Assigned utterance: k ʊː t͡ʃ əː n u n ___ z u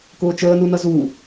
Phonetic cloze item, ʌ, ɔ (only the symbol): ʌ